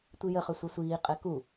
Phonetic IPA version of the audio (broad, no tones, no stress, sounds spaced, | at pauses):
tʷ i j ə χ œ sʷ ɛ sʷ iː qʼ ɛ k u